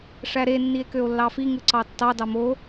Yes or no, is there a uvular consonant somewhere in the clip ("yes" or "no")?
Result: no